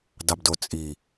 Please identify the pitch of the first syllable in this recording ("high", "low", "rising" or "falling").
low